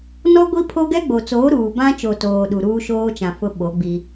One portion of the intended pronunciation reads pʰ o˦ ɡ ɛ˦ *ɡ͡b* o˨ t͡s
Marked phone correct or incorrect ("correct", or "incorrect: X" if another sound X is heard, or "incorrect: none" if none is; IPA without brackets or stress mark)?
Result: correct